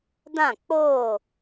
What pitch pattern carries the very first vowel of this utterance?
falling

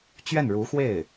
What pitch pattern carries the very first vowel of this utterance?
falling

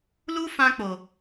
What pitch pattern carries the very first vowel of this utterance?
high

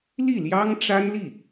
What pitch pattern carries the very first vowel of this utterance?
falling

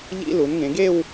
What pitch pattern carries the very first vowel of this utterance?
high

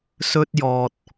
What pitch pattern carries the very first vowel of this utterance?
high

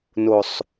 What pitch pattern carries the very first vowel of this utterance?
low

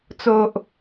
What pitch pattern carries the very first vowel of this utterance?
low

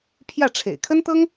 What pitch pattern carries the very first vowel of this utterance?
falling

